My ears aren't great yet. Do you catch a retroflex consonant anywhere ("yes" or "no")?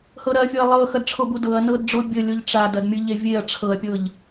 yes